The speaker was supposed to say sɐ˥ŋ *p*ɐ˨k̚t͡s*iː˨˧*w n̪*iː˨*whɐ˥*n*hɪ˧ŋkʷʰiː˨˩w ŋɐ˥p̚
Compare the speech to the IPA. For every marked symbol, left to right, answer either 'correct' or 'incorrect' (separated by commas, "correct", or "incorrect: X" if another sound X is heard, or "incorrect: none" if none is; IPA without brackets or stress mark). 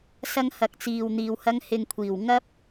incorrect: h, incorrect: iː˨, correct, incorrect: ŋ